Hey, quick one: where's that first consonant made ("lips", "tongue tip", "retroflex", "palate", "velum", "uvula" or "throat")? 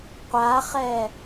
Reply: uvula